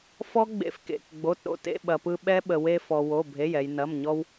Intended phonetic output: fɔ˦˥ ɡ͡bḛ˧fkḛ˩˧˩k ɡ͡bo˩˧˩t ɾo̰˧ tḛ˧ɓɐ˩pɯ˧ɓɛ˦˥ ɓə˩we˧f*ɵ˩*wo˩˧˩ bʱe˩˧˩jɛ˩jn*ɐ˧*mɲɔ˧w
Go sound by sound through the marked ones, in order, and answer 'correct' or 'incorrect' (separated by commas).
incorrect, incorrect